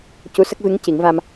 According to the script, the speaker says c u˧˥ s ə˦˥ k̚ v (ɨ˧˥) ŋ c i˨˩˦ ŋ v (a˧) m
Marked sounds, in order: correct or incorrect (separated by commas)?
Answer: correct, correct